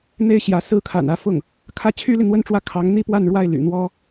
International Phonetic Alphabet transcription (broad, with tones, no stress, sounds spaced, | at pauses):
n̪ e˥˩ ɪ̯ ɕ j ä˧˥ s ɹ̩˥ kʰ a̰˨˩ n ä˧˥ f ʊ˥˩ ŋ | kʰ ä˥˩ t͡ɕʰ y˥ l i˨ n̪ w ə˥˧ n ʈ͡ʂ w ä˥˩ kʰ ɑ˧˥ ŋ n̪ i˥ p w a˥˧ n ɻ w a˥˩ ɪ̯ l y̰˨˩ n̪ w ɔ˥